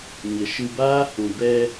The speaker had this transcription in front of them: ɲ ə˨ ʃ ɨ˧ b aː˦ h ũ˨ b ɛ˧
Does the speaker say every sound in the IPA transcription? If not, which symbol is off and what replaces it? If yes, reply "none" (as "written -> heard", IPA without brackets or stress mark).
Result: none